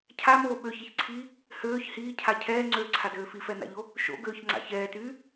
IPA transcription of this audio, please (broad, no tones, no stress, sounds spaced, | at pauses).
cʰ a m oː ɓ ø ç i ç ǀʰ iː | h øː ç h iː cʰ a cʰ ɛː ŋ͡ǀ øː ǀʰ a d øː f i f ɛ n a̰ ʎ o | ʃ o̰ ɡ øː ç ŋ͡ǀ a̰ ç ɛː t yː